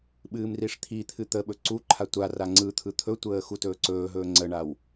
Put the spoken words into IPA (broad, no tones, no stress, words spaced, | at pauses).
ɓɨːmriʂt̪ʰit̪ʰɨ t̪əɓɵ ǀuǃʰa tʷa raŋ͡ǀɯt̪ʰɯ t̪ʰɵtʷəː xutɵːǀɵːɦɵː ŋ͡ǀəɳaw